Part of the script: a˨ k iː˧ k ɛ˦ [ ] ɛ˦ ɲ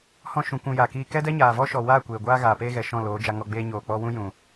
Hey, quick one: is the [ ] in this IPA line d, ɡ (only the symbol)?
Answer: d